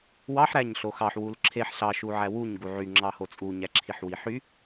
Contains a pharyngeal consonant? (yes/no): yes